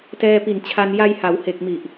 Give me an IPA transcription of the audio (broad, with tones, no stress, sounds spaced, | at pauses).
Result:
t ɛː˧ p i˨˩ n t͡ɕʰ a˧ n j a˧ j h a˩˦ w h e˨˩ k̚ m i˨˩ ʔ